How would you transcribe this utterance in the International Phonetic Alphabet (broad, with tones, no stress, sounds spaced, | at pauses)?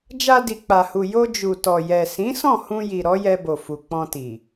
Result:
d͡ʒ a˧ d i˨ k͡p a˨ h u˨ j o˧ d͡ʒ u˨ t ɔ˨ j ɛ˨ s ĩ˨˦ s ɔ̃˦˨ h ũ˧ j i˨ ɾ ɔ˨˦ j ɛ˧ b o˨ f u˨ k͡p ɔ̃˧ t i˨